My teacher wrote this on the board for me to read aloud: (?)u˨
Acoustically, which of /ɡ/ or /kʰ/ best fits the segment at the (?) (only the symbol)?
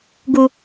ɡ